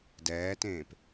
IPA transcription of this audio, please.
d ɛː t ẽː p

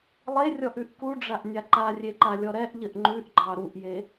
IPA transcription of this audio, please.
lˠ e rʲ ɔ ʔ ʉ ʔ k u ɖ͡ʐ a ʔ nʲ a ǃ a rʲ e ǃ a lʲ ɔ ɾ ɛ ʔ ʎ ə ʔ ŋ͡ǃ ʉ ʔ ɡ͡ǃ ɑ ɾ u ʔ j e

